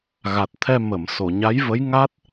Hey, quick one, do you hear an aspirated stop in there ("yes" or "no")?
yes